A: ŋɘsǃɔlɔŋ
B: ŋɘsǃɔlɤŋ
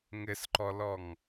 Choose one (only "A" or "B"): A